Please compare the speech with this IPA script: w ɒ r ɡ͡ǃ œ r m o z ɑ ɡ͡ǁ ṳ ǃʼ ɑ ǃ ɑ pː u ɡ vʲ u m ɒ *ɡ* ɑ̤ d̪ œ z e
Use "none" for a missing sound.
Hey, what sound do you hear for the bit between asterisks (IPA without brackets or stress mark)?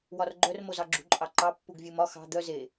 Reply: x